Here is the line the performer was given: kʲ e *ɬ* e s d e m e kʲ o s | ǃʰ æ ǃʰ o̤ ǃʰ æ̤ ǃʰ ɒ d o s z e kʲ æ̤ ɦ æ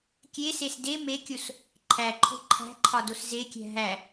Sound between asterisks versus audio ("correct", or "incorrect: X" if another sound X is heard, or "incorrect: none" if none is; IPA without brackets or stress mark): incorrect: s